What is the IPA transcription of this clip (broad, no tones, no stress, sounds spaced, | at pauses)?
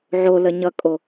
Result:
ʕ o l ə ɲ ʌ kʼ o